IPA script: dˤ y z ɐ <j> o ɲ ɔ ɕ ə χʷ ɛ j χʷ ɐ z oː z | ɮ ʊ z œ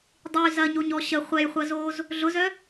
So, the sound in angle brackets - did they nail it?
no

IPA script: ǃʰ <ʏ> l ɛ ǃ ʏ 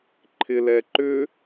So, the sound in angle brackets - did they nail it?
no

